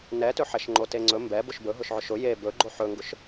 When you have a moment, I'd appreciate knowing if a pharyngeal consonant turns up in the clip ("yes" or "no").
yes